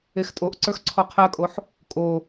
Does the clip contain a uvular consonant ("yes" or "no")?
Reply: yes